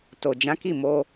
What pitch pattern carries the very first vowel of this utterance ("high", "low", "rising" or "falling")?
low